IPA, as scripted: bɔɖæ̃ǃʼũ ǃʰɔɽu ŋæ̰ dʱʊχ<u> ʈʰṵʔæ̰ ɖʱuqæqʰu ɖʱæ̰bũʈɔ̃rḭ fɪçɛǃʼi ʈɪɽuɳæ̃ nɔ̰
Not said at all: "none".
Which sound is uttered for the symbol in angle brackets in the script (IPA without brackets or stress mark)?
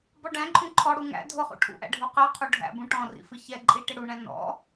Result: ṵ